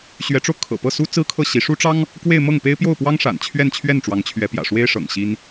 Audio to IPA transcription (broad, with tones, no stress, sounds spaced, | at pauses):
ɕ ɥ ɛ˧˥ ʈ͡ʂ o˧ ʊ̯ kʰ ɤ̰˨˩ p ɤ˥˩ s u˥ t͡s ɹ̩˥ kʰ ɤ˥˩ ɕ i˧˥ ʂ u˥ ʈ͡ʂ ɑ˥ ŋ | k w e˥˧ ɪ̯ m ɤ˥˩ ŋ p e˥ ɪ̯ p j o˥˩ ʊ̯ p w ɑ˥ ŋ ʂ a̰˨˩ n t͡ɕʰ ɥ ɛ˥˧ n t͡ɕʰ ɥ ɛ˥˩ n ʈ͡ʂ w ɑ˧˥ ŋ t͡ɕʰ ɥ ɛ˧˥ p j ä̰˨˩ ʂ w e˥ ɪ̯ ʂ ɤ̰˨˩ ŋ ɕ i˥ n